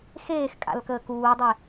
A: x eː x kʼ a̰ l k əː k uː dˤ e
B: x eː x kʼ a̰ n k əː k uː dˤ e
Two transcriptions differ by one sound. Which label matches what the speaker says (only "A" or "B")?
A